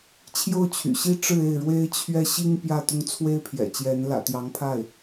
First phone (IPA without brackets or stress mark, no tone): t͡ɕʰ